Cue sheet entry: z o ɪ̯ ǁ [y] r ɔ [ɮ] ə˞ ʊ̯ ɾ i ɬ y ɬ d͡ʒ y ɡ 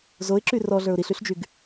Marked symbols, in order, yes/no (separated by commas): yes, yes